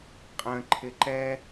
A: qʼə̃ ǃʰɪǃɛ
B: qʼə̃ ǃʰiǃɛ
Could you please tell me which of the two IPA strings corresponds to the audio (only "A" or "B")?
A